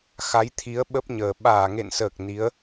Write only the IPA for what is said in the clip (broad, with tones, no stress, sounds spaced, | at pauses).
x a˨˦ j t̪ʰ i˨˦ ə̯ ɓ ə˦˥ p̚ ɲ əː˨˩ ɓ aː˧˩ ŋ ḛ˧˨ n s əː˨˩ k̚ n i˨˦ ə̯